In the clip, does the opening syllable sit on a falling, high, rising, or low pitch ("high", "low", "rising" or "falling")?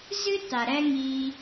high